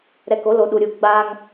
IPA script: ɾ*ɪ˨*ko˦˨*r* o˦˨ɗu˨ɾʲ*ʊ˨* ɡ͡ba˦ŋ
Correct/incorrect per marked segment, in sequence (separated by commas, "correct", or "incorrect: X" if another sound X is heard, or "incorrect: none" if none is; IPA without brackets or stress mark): incorrect: ɛ˨, incorrect: l, incorrect: u˨